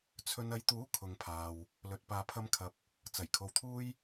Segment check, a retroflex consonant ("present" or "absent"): absent